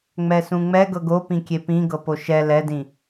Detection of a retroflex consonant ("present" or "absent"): absent